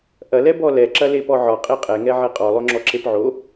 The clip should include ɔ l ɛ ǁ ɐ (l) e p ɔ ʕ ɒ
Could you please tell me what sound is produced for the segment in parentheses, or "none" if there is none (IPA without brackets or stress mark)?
l